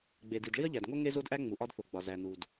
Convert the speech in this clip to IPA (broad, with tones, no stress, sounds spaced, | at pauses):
ɡ͡b e˩ d i˩ d ɭ i˥ ɐ̯ ʎ æ˩ d ŋ o˥ ŋ e˥ z o˥ d ʔ æ˥ ŋ͡m u˩ ʔ ɒ˥ d θ o˩ ɡ͡b ɒ˩ z æ˩ n u˩ d